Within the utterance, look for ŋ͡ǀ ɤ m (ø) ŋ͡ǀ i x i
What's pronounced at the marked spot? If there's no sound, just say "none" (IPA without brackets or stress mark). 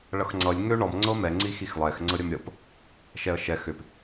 ɛ